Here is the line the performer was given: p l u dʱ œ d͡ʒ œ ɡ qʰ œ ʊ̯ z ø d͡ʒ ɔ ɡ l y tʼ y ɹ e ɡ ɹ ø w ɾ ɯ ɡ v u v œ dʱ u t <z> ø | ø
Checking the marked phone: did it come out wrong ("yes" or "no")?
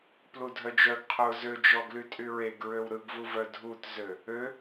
no